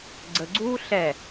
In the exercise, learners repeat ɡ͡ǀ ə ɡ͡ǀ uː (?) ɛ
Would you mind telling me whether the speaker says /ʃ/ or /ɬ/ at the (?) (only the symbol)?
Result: ɬ